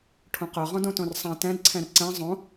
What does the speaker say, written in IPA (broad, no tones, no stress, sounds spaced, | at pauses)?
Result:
ʈʰ õ q œ ʁ ɔ̃ d õ t õ r sˤ ã t ɛ̃ d ǀʰ ɛ̃ r ǀ ɛ̃ zˤ õ